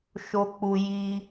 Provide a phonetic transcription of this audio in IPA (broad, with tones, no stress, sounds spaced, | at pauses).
ʃ o˦ k͡p u˦ j i˦